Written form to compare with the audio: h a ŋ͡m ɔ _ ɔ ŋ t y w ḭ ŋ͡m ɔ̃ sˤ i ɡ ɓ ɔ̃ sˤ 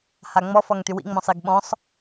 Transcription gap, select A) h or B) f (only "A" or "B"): B